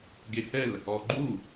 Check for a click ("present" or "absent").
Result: present